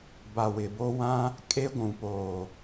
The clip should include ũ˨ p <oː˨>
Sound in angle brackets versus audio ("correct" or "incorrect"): correct